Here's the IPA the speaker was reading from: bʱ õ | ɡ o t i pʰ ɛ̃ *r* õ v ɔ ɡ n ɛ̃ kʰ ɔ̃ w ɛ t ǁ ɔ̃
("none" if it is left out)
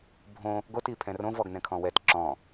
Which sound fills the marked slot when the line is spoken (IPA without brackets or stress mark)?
r